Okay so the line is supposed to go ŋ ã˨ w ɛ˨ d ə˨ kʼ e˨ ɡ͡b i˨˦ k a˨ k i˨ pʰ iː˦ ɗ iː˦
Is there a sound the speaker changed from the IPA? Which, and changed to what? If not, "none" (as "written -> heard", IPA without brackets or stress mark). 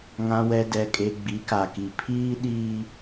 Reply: ə˨ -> ɛ˨